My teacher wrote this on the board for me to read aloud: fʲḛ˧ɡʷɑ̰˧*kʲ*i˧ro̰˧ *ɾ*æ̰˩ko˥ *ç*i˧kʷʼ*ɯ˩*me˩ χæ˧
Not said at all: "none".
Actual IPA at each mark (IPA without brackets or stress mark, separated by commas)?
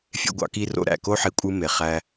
k, ɾ, ħ, ɯ˥